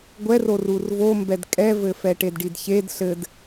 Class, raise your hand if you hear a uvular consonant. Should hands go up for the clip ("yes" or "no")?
no